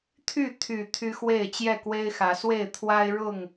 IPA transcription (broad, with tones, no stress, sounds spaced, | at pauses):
t̪ʰ y˥˨ t̪ʰ y˨˩ t̪ʰ y˦ x w e˥˨ ɪ̯ t͡ɕ j ɛ˥˨ k w e˦ ɪ̯ x ä˨˦ s w e˥˨ ɪ̯ t̪ʰ w a˦ ɪ̯ ɻ ʊ˥˨ ŋ